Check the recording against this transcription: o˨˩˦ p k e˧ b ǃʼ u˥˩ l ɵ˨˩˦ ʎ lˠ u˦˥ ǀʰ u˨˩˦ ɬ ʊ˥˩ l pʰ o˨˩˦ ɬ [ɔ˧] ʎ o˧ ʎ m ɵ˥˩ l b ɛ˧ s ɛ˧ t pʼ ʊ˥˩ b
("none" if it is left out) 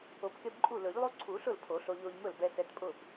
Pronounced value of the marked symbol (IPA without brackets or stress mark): o˧